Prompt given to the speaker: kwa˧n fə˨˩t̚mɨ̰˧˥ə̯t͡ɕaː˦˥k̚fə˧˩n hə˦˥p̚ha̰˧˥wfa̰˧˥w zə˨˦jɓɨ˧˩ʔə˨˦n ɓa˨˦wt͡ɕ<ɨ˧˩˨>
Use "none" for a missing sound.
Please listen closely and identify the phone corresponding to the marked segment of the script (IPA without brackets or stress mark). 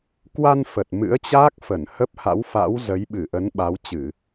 ɨ˧˩˨